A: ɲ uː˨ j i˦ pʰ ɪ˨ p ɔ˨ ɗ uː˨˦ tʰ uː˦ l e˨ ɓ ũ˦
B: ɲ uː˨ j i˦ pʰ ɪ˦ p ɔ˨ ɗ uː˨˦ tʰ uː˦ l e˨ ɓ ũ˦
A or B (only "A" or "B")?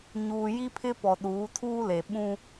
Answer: B